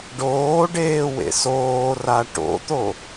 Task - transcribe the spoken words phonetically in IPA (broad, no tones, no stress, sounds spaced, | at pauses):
ɖ oː ɖ eː w ḛ s oː r a ʈ o̰ t̪ o